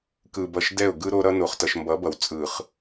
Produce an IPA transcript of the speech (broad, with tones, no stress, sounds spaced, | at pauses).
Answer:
k ɯ˨ b ʌ˨ ʃ d ɛ˦˨ ʊ̯ ɡ ɯ˦ ɾ o˦ ɾ ʌ˦ n o˨ χ t ʌ˨ ʃ m b ʌ˨˦ b ʌ˨ w t͡sʼ ɯ˨ χ